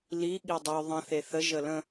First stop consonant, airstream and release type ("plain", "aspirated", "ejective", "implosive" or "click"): implosive